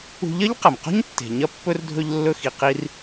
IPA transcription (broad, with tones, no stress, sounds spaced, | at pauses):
ṳ˧ ʎ ɐ˥ ʎ q ɐ˩ m q o̤˥ ɲ tː e̤˩ ɲ ɐ˧ pː ɵ˧ r dʱ ɵ˧ ʎ lː ɵ˧ x i˩ q i˧ r